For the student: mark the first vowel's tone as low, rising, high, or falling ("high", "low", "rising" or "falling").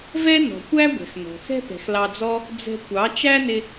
high